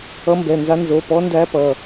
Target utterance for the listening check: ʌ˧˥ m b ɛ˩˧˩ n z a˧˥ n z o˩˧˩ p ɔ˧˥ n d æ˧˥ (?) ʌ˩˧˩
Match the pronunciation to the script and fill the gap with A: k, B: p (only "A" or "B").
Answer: B